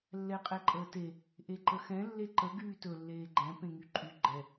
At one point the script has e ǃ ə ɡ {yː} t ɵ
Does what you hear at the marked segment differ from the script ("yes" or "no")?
no